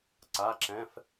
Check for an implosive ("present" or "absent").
absent